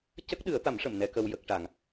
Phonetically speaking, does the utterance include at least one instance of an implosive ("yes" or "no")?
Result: yes